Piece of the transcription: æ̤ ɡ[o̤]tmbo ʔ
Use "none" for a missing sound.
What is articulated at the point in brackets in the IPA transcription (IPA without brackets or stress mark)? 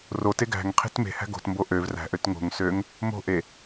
o̤